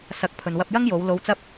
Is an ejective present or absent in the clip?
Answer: absent